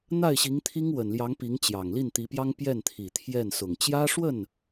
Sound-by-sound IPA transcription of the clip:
n̪ a˥˩ ɪ̯ ɕ i˧˥ ŋ t̪ʰ i˥ ŋ w ə˨˩ n l j ɑ˧˥ ŋ p i˧˥ ŋ t͡ɕ j ɑ˨˩ ŋ l i˥˩ n t̪ i˧˥ p j ɑ˥ ŋ p j ɛ˥˩ n t̪ʰ i˨˩ t̪ʰ j ɛ˥˩ n s ʊ˨˩ ŋ t͡ɕ j ä˥ ʂ w ə˥˩ n

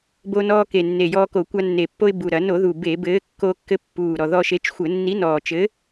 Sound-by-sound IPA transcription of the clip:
b o˧ n ɔː˧ k e˨˩ nː e˨˩ j ɔː˧ k o˧˩˧ kʷ a˧ nː e˨˩ pː o˧ ɪ̯ b u˨˩ ɾ ɐ˧˩˧ n o˧˩˧ ð u˨˩ b e˧˩˧ b ɘː˨˥ kː o˧ kː ɘ˧ pː uː˨˩ ɾ ɔ˨˩ ð ɔ˧ ʃ e˨˥ t͡ʃ xʷ ɘ˧˩˧ nː i˨˥ n ɔː˨˩ t͡ʃ ɘ˨˥

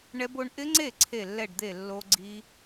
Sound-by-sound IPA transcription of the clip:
ɳ ɛ˦˥ b o˦˥ ɳ ʔ ɪ˦˥ ŋ͡ǀ e˥˩ ǀʰ e˥˩ lː ɛ˥˩ ɖ d̪ e˥˩ lː o˦˥ ɡ͡ǀ i˦˥

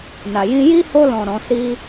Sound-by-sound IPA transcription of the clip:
n a˨ j ĩ˧ j i˦ h o˧ l ɔ̃˨ ɾ ɔ̃˨˦ s i˦

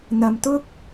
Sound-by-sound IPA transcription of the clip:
n̪ ɐ˧ m t̪ ʊ˥ k̚

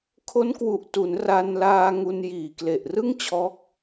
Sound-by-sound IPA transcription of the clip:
kʰ o˦˥ n k w u˨˩ ʔ t u˩˦ n r a˧ n l aː˧ ŋ u˧ n j iː˨˩ k l e˨˩ ʔ r ɯ˥˩ ŋ t͡ɕʰ ɔː˦˥ k̚

